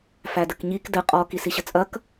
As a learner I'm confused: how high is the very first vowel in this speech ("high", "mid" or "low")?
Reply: low